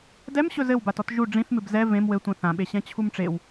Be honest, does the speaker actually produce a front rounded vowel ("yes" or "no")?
no